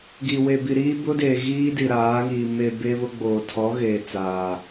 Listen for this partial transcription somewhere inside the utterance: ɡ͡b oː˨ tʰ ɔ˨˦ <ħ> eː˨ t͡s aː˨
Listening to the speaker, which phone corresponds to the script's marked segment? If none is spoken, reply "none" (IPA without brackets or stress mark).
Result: ɣ